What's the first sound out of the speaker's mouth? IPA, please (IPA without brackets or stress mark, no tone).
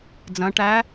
d͡z